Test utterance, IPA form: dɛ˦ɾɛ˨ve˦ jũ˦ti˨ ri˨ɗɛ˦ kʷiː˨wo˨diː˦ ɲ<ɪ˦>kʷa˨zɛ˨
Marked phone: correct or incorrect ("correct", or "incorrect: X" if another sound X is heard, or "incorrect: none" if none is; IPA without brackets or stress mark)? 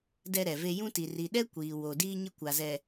correct